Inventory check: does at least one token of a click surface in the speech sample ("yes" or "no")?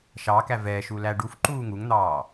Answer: yes